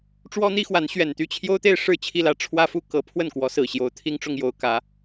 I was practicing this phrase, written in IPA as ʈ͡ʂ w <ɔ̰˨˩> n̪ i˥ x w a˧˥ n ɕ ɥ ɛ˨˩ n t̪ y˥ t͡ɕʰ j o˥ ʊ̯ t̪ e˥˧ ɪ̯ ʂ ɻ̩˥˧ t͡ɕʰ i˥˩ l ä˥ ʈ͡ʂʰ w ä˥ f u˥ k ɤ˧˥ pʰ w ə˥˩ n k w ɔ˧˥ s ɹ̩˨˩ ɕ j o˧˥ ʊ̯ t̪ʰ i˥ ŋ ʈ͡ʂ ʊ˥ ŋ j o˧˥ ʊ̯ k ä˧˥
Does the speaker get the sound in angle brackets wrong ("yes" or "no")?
yes